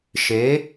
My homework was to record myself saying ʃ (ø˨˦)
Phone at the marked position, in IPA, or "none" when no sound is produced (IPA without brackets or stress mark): e˨˦